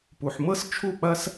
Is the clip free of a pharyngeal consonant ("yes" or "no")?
no